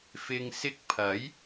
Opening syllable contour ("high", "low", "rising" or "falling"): low